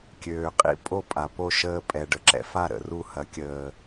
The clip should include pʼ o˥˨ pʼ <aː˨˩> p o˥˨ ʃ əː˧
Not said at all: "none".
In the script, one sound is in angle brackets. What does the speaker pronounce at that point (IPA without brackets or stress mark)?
a˨˩